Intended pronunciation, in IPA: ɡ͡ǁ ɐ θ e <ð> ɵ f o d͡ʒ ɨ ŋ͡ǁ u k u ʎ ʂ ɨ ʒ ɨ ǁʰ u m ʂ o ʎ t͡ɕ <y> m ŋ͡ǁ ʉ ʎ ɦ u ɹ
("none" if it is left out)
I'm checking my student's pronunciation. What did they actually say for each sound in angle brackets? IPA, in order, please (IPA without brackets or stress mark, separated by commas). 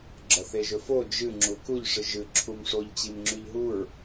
ʒ, i